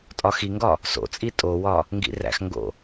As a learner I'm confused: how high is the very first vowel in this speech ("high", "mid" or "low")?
low